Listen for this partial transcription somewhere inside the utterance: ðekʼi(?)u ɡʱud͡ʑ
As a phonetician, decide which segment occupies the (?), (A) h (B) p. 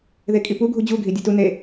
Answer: B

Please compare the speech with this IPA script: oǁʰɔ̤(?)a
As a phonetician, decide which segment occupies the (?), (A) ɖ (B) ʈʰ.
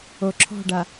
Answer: A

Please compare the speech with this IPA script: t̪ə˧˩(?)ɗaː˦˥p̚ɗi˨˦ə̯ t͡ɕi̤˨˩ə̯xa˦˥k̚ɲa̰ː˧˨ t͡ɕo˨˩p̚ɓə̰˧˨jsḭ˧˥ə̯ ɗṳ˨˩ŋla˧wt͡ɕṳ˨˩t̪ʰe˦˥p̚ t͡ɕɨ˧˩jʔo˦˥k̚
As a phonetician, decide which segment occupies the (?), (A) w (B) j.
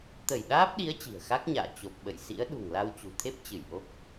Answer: B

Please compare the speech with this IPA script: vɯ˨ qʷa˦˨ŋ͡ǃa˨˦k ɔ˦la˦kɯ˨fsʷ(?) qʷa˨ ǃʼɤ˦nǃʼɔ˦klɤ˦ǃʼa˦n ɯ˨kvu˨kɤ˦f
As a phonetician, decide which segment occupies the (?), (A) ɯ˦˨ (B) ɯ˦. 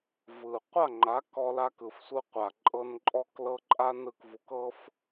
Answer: B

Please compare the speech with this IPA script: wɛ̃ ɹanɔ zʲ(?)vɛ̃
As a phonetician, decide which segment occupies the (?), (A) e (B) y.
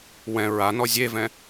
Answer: A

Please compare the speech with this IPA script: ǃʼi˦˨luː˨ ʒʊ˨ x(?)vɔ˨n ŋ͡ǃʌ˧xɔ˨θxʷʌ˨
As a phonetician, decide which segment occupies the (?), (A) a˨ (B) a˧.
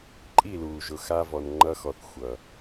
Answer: B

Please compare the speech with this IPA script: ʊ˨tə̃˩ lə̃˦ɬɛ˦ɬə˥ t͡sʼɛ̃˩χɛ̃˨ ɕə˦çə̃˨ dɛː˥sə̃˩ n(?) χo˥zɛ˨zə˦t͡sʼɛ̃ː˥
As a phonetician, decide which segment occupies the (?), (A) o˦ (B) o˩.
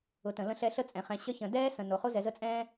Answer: B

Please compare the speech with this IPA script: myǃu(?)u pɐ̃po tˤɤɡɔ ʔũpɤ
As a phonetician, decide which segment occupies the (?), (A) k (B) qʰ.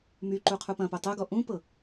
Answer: B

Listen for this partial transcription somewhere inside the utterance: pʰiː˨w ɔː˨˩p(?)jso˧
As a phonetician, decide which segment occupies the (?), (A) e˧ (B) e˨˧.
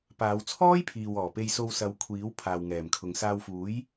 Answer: A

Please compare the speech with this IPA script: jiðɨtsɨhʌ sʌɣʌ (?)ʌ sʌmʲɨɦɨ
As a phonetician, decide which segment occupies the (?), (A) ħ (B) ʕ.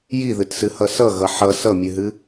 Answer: A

